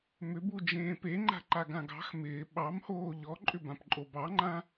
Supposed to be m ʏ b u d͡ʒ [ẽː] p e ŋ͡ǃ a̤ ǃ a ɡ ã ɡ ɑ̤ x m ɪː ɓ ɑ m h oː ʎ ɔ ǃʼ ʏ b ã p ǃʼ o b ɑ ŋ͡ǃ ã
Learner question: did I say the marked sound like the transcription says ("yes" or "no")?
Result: yes